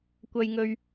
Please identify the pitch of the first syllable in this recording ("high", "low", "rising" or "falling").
low